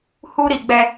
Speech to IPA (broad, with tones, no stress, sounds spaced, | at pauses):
h u˦ ɾ i˨ ɡ͡b ɛ˦